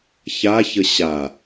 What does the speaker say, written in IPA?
ç a ç ə ɕ a

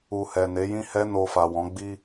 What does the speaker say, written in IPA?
u˨ h ɛ˨ n e˨˦ j ĩ˦ h ɛ˦ n o˧ f a˨ w ɔ̃˨˦ ɡ͡b i˦

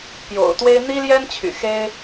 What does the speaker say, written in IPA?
p j o̰˨˩ ʊ̯ t̪ w e˥ ɪ̯ n̪ i˥ l j ɛ˥ n t͡ɕʰ y̰˨˩ x e˥ ɪ̯

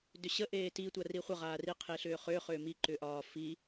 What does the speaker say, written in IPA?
d ʏ ɕ ə ʔ eː t i tʷ a r i χʷ ə ʁ aː r i qʰ e ɬ ʏː χ ʏː χ ʏː m i ǃ ʏː ʔ ɒː f i

